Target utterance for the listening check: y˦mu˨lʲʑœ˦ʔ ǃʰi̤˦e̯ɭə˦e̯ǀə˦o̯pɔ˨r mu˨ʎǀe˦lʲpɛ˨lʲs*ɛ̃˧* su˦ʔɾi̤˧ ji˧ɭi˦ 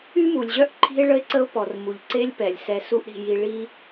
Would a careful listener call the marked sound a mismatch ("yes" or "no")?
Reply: yes